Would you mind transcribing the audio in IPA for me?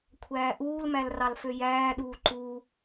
kʷʰæːʔuːlmæl rɑlføjæːɗuː ǃu

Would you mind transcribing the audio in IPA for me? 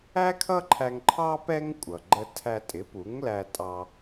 æ˥kʰʌ˥ǃʰæ˧ŋǃʰɑ˥ pɛ˥ŋ kʷʼʌ˩ɡ͡ǃə˧tʰæ˧ tʼɪ˩˥pu˩˥ŋ læ˧tʼɑ˧

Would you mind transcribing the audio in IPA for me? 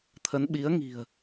t̪ʰə˨˦nɓi˨˦ə̯ŋi̤˨˩ə̯

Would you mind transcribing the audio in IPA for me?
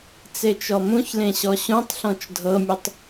t͡set͡ʃɔmũçlẽ ɕɔɕũtˤɬɔ̃t͡ʃ dʱɤmʲutˤ

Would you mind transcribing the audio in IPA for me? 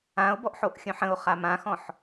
ão̯bɔʔħoʔxʲœ̃ħ ə̃o̯χa mãxɔ̃ħ

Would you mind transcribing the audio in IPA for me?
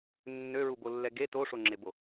nːøɹubolːɛ ɡe toʂoŋ͡ǁebo

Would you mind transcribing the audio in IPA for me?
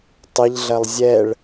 tˤɪʎɮɐlˠ zʲɛɭ

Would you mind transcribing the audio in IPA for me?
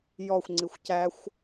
jɔxʷŋ͡ǀixʷ cæxʷ

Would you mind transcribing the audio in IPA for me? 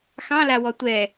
xɑ̃la wɔtʷɛ

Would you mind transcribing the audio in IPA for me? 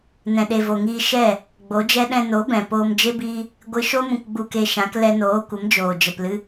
nɛ̃˨ɗe˨vo˨ŋiː˧ ʃɛ˦˨ | ɡ͡bo˨˦d͡ʒɛ˦ ɗɛ̃˧no˨˦bɛ̃˨ poː˧md͡ʒe˦biː˦ | ɡʷɨ˧ʃo˦mũ˧k ɡ͡bu˧ke˧ʃã˨˦k lɛ˧noː˨˦kʷə˨˦md͡ʒoː˨ d͡ʒə˨plɨ˧

